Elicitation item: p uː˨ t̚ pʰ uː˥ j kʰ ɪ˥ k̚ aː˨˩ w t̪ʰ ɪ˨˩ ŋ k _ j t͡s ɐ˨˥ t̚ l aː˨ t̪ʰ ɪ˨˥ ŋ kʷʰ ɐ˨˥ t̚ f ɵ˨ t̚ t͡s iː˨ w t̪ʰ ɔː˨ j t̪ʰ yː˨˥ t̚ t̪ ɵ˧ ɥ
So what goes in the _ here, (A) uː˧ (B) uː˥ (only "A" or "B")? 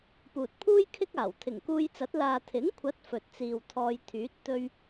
A